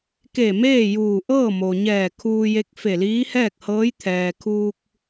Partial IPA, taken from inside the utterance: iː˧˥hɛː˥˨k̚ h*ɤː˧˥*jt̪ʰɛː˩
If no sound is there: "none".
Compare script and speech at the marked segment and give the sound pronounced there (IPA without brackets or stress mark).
ɤː˧˥